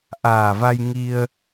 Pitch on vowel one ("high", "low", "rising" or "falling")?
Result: low